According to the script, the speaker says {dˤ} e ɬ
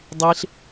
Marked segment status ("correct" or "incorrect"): correct